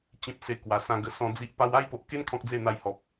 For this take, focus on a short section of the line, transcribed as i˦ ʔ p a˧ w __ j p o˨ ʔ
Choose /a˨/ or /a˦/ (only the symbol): a˦